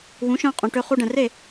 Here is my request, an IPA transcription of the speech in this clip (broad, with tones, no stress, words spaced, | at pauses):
wũ˩˥ʃœ̃˧qʼũ˩ ʈø˧χu˧ɖɛ̃˩ re˥˩